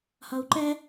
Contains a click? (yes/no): yes